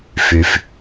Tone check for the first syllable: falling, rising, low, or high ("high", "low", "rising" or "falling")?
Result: low